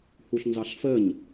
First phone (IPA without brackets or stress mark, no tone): h